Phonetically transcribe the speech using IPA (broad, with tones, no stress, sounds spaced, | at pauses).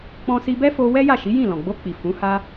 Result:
k͡p ɔ̃˧ s i˧ b ɛ˦ f o˧ w ɛ˦ j a˦˨ ʃ i˨˦ j ĩ˦˨ l ɔ̃˨ ɡ͡b o˧ k͡p i˨ f ũ˨˦ h a˦